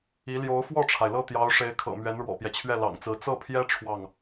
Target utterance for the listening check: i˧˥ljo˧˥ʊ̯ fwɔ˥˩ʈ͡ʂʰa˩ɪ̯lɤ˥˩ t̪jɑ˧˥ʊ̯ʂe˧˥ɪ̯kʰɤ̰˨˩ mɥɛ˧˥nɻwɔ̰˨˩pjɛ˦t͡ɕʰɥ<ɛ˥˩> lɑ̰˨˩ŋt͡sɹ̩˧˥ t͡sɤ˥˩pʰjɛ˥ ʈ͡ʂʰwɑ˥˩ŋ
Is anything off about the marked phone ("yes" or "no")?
no